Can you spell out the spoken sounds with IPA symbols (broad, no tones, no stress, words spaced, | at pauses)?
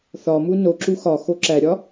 θɒmu noǁu xɒxo ǁæɾʲɒ